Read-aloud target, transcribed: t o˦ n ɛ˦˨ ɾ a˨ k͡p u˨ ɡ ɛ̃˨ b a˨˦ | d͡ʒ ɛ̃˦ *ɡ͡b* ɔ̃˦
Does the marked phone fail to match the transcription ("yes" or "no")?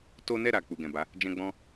no